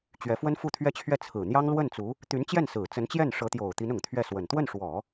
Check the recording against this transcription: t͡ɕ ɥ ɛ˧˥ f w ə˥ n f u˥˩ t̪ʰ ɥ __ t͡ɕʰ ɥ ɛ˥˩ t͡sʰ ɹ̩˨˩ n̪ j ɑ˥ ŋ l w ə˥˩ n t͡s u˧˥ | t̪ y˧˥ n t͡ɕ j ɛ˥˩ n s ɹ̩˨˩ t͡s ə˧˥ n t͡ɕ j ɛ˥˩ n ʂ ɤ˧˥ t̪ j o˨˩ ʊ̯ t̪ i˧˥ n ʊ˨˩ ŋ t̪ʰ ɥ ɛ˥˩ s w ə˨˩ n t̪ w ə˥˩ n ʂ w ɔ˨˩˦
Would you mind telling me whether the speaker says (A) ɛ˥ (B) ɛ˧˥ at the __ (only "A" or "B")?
A